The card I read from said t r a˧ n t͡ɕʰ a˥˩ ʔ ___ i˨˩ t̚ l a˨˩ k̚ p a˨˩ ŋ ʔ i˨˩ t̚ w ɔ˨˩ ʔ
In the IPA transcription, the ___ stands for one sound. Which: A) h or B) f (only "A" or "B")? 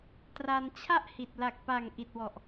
A